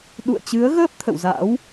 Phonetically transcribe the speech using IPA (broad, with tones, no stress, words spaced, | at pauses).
ɗṵ˧˨ə̯t͡ɕɨ˨˦ə̯ ɣəː˦˥p̚ t̪ʰə̰˧˨wza̰˧˥w